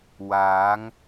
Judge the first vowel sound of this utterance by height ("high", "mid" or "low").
low